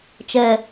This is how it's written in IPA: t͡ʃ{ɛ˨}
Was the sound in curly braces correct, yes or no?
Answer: yes